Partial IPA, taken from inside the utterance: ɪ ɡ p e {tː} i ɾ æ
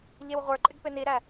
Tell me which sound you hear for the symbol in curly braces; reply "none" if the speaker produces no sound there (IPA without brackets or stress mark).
n